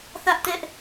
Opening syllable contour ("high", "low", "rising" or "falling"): high